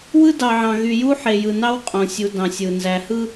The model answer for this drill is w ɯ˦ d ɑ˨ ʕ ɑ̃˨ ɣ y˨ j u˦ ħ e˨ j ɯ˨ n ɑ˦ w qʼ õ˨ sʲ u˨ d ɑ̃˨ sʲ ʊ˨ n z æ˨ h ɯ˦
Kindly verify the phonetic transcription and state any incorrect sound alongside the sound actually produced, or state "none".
ʊ˨ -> ɯ˨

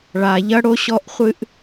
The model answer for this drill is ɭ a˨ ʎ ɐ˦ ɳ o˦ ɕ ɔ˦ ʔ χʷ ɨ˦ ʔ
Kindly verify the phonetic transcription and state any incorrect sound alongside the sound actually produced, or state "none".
ɳ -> ɽ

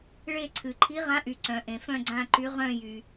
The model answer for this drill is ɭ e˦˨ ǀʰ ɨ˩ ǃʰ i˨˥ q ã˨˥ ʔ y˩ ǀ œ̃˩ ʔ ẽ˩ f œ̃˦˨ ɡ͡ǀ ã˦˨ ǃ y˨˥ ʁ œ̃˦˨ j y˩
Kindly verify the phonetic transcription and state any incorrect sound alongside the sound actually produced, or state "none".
q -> ʁ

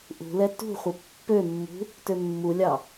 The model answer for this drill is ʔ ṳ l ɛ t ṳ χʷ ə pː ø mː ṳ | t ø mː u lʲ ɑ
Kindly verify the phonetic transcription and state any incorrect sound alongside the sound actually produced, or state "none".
none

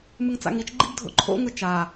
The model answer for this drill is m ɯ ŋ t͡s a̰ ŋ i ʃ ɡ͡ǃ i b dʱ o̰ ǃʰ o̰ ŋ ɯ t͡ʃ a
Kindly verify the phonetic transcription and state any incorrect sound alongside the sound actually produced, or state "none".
ʃ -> t͡ʃ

